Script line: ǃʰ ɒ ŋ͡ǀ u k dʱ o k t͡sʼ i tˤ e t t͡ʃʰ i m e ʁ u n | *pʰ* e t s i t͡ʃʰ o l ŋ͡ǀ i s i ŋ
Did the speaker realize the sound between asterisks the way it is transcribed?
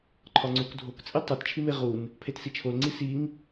yes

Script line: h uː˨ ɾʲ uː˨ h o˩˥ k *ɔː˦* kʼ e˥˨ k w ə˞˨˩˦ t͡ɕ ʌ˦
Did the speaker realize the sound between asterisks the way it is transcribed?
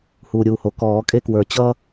no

